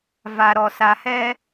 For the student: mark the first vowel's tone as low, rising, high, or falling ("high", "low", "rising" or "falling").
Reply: low